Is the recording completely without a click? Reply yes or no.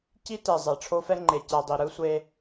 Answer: no